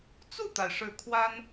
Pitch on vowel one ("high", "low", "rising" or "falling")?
falling